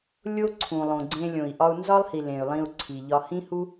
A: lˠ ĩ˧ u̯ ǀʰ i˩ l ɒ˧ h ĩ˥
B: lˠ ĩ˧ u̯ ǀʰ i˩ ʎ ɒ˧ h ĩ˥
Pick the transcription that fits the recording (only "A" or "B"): B